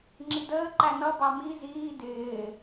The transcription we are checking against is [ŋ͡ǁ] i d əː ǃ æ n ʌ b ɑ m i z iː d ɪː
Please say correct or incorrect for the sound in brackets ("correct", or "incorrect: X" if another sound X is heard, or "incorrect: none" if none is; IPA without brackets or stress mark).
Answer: correct